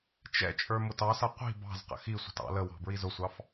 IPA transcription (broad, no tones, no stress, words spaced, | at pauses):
t͡ʃɛ̰t͡ʃʼə˞ mʊtɑsʌ qʷi̤ bɑ̤z qə̰xisʷə̤t ɑ̰ləwɑ̤ bɹizʊsʷɑf